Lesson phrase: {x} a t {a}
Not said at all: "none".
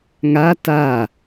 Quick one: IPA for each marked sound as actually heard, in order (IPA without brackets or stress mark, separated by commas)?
ŋ, a